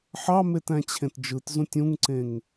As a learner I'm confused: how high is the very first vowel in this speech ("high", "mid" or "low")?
low